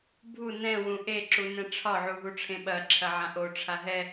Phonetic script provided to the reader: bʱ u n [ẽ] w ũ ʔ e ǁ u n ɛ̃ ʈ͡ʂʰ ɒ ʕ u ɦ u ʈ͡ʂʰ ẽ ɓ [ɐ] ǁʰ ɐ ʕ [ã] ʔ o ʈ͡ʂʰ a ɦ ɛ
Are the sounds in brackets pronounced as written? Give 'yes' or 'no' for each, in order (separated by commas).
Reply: no, yes, yes